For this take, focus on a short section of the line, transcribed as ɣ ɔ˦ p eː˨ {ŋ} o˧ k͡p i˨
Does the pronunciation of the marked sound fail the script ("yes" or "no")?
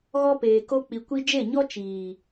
yes